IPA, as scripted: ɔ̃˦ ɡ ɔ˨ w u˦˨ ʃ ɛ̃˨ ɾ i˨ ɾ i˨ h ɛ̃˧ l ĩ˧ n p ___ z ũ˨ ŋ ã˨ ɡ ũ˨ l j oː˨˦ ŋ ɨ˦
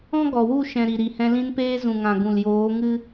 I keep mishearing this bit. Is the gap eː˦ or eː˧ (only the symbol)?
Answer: eː˧